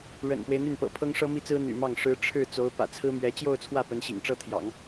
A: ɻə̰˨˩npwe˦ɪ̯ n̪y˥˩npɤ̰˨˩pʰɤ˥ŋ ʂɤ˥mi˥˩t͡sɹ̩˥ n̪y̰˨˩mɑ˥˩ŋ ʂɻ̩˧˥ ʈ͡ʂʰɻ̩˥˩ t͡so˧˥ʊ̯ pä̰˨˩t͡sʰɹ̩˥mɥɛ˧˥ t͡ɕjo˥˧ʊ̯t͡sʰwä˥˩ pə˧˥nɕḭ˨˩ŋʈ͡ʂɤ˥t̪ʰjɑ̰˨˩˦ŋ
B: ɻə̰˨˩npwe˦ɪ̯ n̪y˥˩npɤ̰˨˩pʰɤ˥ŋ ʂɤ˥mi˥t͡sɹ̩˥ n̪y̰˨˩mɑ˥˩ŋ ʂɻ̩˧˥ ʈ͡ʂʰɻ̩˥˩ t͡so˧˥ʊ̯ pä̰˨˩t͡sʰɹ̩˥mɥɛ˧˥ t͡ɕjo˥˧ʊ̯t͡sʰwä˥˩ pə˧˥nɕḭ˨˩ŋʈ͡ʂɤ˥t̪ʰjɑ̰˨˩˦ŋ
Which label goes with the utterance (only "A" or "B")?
B